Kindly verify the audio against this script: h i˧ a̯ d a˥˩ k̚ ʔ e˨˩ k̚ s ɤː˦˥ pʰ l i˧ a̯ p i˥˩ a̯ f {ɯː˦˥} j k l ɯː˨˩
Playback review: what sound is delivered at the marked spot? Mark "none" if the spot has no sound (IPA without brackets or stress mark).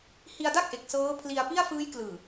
ɯː˦˥